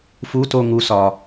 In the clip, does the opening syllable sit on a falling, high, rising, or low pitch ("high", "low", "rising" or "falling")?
rising